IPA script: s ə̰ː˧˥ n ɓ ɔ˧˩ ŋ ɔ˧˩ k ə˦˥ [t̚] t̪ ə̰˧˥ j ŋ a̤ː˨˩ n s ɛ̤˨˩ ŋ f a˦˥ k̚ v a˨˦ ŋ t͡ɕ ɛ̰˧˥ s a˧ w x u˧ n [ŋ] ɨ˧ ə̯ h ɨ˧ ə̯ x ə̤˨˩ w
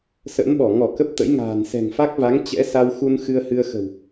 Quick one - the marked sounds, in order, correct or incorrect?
incorrect, incorrect

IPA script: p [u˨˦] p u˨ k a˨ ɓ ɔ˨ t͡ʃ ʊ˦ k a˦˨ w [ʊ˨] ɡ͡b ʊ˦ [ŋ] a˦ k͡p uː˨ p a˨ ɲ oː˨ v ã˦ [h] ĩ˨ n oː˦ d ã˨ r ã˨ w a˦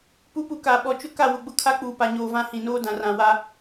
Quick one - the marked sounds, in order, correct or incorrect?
correct, correct, incorrect, correct

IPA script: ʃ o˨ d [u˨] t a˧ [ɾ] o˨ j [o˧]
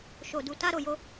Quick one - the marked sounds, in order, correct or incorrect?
correct, correct, correct

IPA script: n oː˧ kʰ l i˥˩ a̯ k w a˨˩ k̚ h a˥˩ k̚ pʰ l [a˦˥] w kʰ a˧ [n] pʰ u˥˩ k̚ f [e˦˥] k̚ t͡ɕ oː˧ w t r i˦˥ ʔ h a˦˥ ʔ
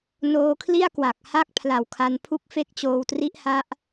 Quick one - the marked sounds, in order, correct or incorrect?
incorrect, correct, correct

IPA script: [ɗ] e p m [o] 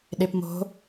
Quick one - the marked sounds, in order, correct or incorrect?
correct, incorrect

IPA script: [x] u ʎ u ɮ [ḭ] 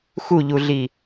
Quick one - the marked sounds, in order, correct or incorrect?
correct, incorrect

